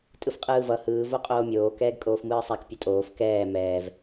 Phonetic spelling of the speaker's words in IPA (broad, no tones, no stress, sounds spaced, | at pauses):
tʼ ɯ f qʼ ɯː v ʌ h ɯː v o qʼ oː mʲ oː k ɛː ɡ kʼ oː f m ɯː sˤ a k pʲ ʌ tʼ oː f k ɛː m ɛː v